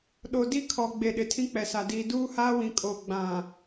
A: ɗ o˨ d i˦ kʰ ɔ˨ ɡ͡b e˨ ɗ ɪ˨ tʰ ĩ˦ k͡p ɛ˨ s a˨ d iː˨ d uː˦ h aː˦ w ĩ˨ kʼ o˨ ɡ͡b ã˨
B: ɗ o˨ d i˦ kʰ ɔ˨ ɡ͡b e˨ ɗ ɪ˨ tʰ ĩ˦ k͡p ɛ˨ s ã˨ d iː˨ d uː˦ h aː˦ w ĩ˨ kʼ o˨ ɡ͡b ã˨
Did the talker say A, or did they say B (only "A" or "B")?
A